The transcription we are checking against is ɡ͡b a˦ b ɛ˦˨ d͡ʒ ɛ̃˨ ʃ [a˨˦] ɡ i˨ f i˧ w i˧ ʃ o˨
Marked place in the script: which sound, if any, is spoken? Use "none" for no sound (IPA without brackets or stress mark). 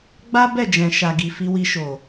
a˨